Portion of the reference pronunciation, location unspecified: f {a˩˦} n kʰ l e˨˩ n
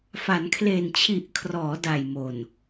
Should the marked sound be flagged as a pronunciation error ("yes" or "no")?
no